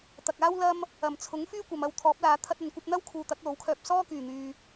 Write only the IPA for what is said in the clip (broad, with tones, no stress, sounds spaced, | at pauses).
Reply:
t̪ ɐ˨ k̚ aː˥ w l ɐ˥ m | ɐ˨˩ m t͡sʰ ʊ˨˥ ŋ f yː˥ kʷ ɐ˨ m ɐ˧ w t̪ʰ ɔː˨˥ p̚ l aː˨˧ t̪ʰ ɐ˧ t̚ ɐ˨ n kʷ ɐ˧ p̚ n̪ ɐ˥ w kʰ uː˧ t̪ ɐ˨˥ k̚ l o˨˥ w kʰ œː˧ p̚ s ɔː˥ k yː˨˩ n̪ yː˨